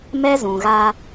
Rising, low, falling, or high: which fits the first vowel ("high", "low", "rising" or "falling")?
high